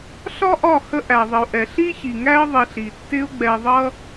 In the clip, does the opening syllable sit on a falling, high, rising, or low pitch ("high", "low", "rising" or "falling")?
high